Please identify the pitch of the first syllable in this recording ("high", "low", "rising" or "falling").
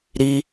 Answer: high